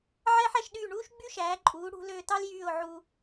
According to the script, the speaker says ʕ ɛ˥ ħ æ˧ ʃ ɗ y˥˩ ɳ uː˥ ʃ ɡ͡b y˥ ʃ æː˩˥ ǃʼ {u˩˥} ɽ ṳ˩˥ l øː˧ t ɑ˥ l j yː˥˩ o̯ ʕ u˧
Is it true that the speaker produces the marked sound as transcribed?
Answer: no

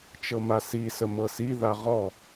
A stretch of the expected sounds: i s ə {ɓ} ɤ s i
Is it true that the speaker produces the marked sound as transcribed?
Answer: no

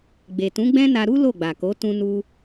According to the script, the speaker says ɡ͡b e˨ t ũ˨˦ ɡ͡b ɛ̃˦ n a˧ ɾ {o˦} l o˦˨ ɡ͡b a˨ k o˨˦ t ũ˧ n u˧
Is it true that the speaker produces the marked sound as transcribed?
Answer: no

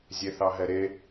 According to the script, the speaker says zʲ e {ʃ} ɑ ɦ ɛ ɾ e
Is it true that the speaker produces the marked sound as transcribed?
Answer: no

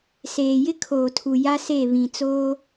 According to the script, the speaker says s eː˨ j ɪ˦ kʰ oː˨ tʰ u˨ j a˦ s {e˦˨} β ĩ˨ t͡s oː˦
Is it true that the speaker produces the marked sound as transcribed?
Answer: yes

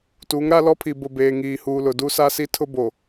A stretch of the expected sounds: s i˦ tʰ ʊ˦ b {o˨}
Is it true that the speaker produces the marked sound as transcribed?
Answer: yes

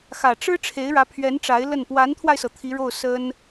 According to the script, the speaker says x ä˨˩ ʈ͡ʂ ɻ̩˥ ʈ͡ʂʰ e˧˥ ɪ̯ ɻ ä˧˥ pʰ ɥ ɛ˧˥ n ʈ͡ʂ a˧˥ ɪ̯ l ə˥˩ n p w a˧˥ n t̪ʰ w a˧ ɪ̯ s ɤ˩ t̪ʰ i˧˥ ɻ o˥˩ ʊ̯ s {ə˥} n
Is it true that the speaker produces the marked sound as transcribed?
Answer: yes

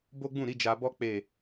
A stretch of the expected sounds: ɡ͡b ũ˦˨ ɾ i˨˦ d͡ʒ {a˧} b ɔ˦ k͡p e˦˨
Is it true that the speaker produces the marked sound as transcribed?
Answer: yes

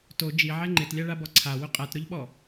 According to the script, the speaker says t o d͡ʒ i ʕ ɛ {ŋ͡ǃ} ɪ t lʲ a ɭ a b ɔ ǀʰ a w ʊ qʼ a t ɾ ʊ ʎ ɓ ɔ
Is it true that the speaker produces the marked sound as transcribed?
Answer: yes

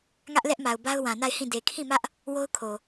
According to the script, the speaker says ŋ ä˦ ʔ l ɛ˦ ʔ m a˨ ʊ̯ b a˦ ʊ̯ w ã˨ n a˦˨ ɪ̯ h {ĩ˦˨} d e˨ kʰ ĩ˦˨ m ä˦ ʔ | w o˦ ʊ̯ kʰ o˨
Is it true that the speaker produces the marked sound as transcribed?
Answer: yes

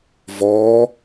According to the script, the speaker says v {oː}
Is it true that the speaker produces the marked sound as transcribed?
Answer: no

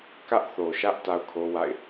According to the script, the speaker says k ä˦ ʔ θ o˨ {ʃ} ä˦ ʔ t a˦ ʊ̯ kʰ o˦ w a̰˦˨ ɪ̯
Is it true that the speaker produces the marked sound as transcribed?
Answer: yes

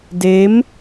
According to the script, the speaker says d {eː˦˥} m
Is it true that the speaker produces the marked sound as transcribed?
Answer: yes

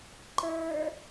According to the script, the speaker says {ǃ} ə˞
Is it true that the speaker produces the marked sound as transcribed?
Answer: yes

